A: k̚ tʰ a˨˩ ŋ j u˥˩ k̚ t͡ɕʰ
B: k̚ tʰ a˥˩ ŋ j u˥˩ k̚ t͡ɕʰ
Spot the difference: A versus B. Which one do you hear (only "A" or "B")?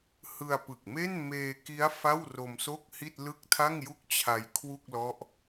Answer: B